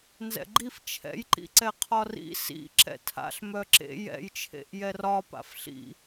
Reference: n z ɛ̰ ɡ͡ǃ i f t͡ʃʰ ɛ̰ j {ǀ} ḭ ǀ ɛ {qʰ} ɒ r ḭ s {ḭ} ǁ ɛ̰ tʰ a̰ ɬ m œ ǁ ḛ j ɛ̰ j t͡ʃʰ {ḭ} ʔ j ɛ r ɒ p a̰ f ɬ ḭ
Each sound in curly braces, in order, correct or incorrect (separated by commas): incorrect, correct, correct, incorrect